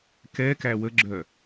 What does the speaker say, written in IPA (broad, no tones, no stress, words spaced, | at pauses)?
kɛkæ wəɡ͡ǁœ